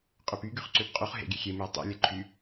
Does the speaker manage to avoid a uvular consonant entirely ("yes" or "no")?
no